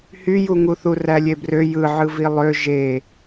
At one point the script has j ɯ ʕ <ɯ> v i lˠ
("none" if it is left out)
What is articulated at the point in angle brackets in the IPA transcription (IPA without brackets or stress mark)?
ɯ